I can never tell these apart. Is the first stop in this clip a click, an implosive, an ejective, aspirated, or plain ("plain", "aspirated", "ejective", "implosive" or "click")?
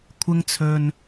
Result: aspirated